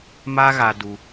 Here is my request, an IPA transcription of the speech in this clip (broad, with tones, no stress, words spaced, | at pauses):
ma˦ɣa˧ du˧